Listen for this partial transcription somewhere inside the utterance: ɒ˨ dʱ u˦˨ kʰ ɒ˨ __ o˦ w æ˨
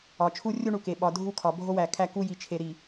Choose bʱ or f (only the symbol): bʱ